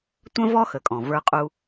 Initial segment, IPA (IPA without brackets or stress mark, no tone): tʷ